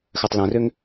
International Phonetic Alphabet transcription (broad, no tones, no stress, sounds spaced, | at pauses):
x œ tˤ l œ̃ r ø ŋ